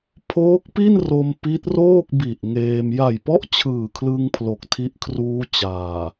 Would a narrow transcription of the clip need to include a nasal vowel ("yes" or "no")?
no